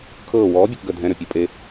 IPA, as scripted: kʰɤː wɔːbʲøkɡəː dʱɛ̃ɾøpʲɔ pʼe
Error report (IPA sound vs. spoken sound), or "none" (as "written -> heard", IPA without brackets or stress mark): none